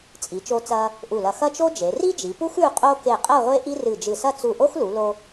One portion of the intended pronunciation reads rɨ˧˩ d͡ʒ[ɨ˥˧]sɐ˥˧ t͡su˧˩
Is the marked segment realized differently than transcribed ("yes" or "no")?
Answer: yes